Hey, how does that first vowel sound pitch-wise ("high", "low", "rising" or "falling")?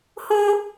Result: high